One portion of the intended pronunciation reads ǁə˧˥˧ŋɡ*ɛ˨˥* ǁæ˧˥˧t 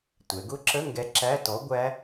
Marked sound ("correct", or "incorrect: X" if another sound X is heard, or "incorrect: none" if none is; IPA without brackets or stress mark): correct